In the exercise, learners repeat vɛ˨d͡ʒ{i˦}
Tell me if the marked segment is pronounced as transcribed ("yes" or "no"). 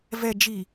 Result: no